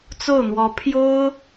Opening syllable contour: falling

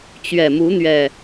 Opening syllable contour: low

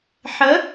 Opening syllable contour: rising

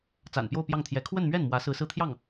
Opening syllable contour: low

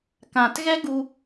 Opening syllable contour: low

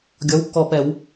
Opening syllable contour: rising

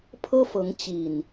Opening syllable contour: high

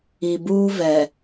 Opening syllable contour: low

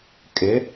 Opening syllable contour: rising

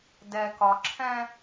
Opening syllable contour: low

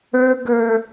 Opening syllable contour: high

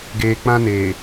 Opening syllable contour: low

